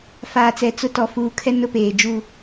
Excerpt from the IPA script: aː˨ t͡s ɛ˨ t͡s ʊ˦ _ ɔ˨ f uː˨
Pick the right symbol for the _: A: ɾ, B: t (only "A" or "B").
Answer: B